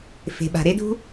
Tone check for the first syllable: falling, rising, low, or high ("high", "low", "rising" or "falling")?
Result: low